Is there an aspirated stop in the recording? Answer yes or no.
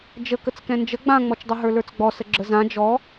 no